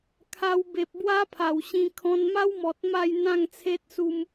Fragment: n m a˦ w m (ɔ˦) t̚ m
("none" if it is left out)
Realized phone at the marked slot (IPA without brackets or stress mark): ɔ˨